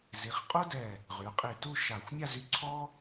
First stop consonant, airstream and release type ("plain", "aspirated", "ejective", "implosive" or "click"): ejective